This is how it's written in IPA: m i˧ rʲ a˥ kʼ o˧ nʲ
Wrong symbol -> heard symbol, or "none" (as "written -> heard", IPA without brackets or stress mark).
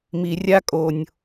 none